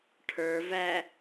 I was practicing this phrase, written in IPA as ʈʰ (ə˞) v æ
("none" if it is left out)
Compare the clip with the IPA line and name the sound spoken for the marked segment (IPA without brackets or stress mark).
ə˞